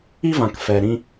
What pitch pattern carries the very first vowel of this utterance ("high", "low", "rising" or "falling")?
high